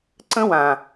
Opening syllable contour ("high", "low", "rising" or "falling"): high